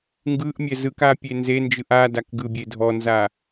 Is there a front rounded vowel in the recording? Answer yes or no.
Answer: no